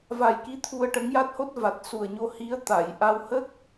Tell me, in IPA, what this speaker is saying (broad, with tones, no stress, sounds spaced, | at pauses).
v a˨˩ j k i˧˥ t̪ʰ u˧ ə̯ ʈ ə˧˥ ŋ j a˦˥ t̚ h o˦˥ t̚ v a˨˩ t̚ s u˨˩ ə̯ ɲ o˧ h i˧˥ ə̯ t̪ a˨˩˨ j ʔ a˧ w h ə˦˥ k̚